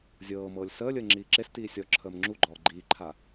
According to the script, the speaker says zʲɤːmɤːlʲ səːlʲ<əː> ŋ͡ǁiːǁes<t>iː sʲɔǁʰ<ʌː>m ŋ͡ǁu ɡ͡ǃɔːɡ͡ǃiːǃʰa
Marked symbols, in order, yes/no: yes, yes, no

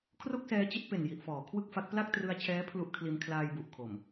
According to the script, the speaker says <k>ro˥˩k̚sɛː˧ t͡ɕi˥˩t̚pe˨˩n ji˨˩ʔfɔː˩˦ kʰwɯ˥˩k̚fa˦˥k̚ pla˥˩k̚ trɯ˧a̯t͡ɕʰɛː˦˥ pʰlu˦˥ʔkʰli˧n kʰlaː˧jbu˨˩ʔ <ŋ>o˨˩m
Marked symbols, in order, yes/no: no, no

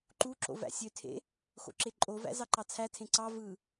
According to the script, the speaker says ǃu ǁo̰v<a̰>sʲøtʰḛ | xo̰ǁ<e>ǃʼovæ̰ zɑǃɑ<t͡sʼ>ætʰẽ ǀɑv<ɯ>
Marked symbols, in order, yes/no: no, yes, no, yes

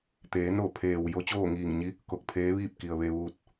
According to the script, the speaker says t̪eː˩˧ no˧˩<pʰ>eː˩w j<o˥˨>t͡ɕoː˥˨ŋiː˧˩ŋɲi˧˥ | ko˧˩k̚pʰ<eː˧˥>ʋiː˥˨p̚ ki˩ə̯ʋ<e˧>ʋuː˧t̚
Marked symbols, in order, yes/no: yes, no, yes, yes

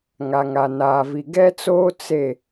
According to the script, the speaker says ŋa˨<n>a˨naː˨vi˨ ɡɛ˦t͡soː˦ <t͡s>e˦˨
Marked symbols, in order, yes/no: no, yes

